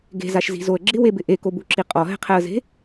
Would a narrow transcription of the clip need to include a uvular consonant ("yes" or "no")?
yes